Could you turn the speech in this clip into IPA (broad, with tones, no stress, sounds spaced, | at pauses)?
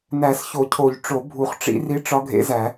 n æ˨˩˦ s ç o˨˩˦ cʰ o˨˩˦ ʎ ʈ͡ʂ o˨˩˦ bʱ u˨˩˦ χ ʈ͡ʂ ḭ˧˥ r i˧˥ ʈ͡ʂ ɒ˧˥ ɡʱ ḛ˧˥ z æ˨˩˦